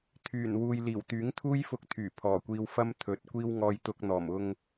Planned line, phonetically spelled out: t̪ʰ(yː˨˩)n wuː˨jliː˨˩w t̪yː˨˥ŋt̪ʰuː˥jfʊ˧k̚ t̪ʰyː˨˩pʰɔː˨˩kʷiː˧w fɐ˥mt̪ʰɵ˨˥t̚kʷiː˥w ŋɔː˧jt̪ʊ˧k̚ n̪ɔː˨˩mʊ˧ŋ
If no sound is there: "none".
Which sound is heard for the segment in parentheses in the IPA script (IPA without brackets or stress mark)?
yː˨˩